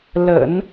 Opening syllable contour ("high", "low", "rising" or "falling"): low